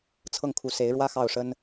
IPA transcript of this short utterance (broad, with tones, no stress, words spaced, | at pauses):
t͡sʰɤ˥˩ŋkʰu˧˥se˧˥ɪ̯ɻwä˥ xɑ˥˩ʊ̯ʂə˥n